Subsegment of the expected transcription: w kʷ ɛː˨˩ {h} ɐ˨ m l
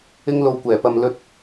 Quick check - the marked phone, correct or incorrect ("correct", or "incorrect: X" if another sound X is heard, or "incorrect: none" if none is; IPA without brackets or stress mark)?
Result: incorrect: p